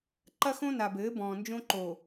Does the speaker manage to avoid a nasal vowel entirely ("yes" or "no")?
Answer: no